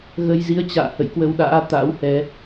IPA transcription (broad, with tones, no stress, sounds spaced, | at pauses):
ɣ ə˧ j z i˧ ə̯ t͡ɕ a̰ː˧˨ h ə̰˧˨ j k w ə˧ w ɗ a̰ː˧˥ t̪ a̰˧˥ w h ɛ˨˦